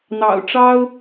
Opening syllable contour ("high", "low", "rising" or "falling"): low